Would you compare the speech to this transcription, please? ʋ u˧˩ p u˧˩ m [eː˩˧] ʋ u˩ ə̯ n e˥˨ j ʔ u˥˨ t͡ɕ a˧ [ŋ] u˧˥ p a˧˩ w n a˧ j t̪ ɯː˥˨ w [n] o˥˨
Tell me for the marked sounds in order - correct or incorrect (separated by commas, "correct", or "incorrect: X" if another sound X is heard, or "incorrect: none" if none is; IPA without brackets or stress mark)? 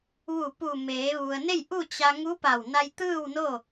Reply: correct, correct, correct